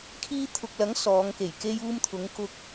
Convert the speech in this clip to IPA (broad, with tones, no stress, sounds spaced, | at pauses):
kʰ iː˧ t̪ʰ ʊ˨ k̚ l ɐ˨˥ ŋ s ɔː˨˧ ŋ k e˨˩ j k e˧ j uː˧ m t̪ʰ ʊ˨˧ ŋ k ʊ˧ k̚